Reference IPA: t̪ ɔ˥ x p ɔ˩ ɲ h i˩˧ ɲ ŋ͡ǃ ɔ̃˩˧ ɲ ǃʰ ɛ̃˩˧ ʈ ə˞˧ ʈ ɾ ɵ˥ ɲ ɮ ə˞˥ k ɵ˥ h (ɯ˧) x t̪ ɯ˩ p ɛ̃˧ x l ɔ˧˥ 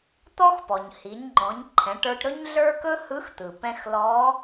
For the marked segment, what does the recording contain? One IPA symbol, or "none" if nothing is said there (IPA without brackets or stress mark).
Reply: ɯ˧˥